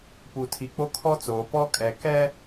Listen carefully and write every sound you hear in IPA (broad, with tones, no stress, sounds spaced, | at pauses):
p u˨ tʰ i˨ k͡p o˦ kʰ ɔ˦ t͡s oː˨ p ɔ˦ kʼ ɛ˨ k ɛ˦